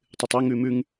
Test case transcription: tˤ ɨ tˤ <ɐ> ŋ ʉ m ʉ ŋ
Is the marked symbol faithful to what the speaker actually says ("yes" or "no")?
yes